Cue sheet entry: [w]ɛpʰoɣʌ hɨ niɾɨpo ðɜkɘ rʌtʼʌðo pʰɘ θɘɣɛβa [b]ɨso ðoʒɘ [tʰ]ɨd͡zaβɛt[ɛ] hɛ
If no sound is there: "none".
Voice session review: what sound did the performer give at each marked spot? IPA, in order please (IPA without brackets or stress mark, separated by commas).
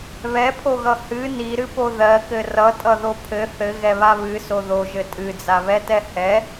β, β, tʼ, ɛ